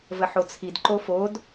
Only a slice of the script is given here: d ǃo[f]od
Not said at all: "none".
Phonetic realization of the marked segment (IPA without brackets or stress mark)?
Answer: f